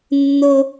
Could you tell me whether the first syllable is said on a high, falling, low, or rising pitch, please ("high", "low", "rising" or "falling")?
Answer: high